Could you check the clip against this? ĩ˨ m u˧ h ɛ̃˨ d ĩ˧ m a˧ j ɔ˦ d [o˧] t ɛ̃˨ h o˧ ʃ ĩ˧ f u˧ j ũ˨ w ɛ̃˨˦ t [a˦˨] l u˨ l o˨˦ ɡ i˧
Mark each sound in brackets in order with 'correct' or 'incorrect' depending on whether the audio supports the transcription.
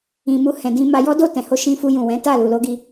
incorrect, correct

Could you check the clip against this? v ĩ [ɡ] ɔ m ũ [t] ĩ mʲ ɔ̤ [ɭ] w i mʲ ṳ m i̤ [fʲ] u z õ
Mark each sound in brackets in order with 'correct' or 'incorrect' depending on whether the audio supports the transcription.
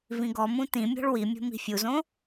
correct, correct, correct, correct

